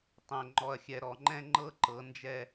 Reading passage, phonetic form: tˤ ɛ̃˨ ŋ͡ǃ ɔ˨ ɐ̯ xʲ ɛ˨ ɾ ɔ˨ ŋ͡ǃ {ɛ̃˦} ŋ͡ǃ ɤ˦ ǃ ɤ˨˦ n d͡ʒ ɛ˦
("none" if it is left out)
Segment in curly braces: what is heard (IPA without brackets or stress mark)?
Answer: ɛ̃˦